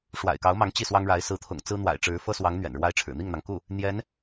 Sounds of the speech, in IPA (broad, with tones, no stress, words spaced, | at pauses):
ʂwa̰˨˩ɪ̯kɑ˧˥ʊ̯mɑ˧˥ŋ t͡ɕi˥˩swɑ˥ŋɻa˧˥ɪ̯ sɹ̩˧˥t̪ʰʊ̰˨˩ŋ t͡sɹ̩˥n̪wa̰˨˩ɪ̯ʈ͡ʂɻ̩˧˥ fɤ˥swɑ˧˥ŋ n̪ɥɛ̰˨˩nɻwa˥ɪ̯ʈ͡ʂʰɻ̩˨˩ n̪i˥˩ŋn̪ɑ˩ŋku˥˩ | n̪jɛ˧˥n